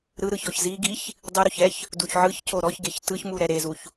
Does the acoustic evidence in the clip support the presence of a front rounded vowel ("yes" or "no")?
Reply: no